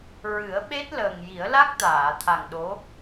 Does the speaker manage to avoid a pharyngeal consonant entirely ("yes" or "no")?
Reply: yes